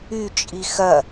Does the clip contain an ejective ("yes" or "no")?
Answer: yes